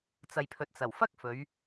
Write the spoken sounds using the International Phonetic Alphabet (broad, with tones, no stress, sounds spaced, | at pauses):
t͡s ɐ˨ j pʰ ɵ˨ t̚ t͡s ɐ˨˩ w f ɐ˥ k̚ f ɵ˨˧ ɥ